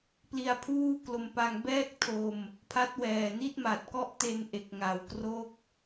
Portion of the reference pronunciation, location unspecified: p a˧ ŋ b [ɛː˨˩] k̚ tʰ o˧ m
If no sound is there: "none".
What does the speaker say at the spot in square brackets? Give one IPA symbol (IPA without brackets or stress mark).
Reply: ɛː˥˩